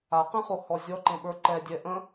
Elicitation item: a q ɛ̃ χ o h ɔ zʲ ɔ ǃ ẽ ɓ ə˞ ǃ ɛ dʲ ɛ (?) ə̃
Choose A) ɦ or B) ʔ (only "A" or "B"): B